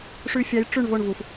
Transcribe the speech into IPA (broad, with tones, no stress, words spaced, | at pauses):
ʂʉ˨fʲɑ˨˦j ʈ͡ʂʉ˦˨ɳ vo˦˨ɳvu˨f